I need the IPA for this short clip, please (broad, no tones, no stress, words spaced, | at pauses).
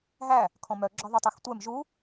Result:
ɦæ | kʰɔ̃mœ ɡ͡ǁɔðˤytˤextʷɛm ʒu